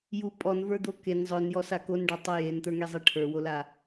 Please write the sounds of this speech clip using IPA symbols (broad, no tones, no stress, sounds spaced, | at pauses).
j u pʼ ɔ n v ə˞ d̪ o k e n zˤ œ n j ɔ s a k o n ɖ ɔ tˤ a j e n t̪ ə˞ ŋ e zˤ e ʈʰ ə˞ w o l a